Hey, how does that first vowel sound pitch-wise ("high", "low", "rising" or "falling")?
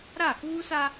falling